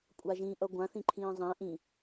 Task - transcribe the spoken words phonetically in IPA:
kʷʼaʒĩʔʌ ɡʷãθĩ ǃʰĩːzˤæ̃ ʔĩ

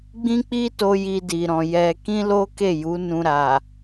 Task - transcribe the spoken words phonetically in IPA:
ɡ͡bĩ˦k͡pi˦to˧ ji˧di˨ɾɔ̃˨ jɛ˧ kĩ˦lo˦ke˦˨ju˨˦ nũ˧ɾa˨

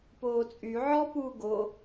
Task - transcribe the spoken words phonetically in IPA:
poːt͡sʼy ʕɔ puːɡo

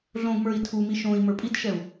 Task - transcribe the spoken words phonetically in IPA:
ɮõɡmə˞i̯ tʰumi ʃõi̯ mə˞pʼitʃɛu̯

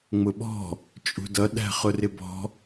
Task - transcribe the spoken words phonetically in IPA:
ŋ͡mʊɓɔ̤ | t͡ʃʼṳdʌ ɗæ̤χʊrɪbɔ̤

